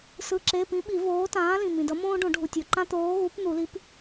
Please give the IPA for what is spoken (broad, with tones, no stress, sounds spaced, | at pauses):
s ɯ˧˥˧ ǁ e˧˥˧ p ĩ˨˥ ɓ i˨˩˦ v oː˨˥ t ãː˨˥ l ĩ˩ m ĩ˩ d ʌ˨˥ m õː˥ ɖ õ˨˩˦ ɖʱ u˩ tʲ o˩ ǃ ã˥ t̪ oː˨˥ ɣ u˨˥ p n̪ u˨˩˦ l i˨˥ p